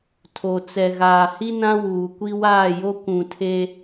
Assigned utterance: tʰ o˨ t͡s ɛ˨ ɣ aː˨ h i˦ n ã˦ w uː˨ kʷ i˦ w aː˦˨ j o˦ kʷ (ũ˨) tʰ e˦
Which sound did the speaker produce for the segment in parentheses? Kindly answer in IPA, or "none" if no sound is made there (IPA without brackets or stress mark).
ũ˨